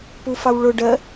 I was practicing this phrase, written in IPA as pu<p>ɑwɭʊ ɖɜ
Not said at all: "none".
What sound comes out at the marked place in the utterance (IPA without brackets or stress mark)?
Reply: f